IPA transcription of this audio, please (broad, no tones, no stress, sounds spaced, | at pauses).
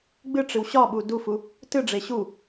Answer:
ɡ͡b ɨ ʈ͡ʂ ɨ w ɕ ɒ ɓ u d u f u | t ɨ ɖ͡ʐ e ɕ u